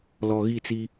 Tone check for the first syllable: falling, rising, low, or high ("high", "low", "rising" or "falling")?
low